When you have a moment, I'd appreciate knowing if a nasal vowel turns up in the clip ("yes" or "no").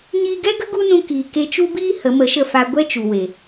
yes